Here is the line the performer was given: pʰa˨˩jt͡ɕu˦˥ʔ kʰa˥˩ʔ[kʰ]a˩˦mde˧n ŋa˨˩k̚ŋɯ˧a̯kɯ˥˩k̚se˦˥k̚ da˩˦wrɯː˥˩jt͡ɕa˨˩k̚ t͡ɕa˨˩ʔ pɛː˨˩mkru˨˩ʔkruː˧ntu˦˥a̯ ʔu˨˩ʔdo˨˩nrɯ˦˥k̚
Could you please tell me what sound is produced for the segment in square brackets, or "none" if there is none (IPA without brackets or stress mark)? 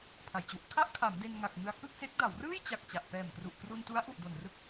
kʰ